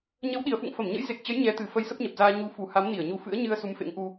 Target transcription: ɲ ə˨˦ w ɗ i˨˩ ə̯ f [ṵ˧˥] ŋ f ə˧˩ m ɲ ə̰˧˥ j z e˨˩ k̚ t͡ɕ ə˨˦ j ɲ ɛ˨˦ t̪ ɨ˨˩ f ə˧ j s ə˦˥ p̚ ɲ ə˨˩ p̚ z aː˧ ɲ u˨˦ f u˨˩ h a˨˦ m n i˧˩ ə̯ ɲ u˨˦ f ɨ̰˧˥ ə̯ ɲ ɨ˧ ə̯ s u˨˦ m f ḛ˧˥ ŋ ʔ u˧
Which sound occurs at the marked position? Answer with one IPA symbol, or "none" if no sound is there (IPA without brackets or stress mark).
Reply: ṵ˧˨